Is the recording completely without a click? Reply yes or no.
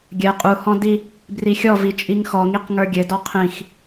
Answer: yes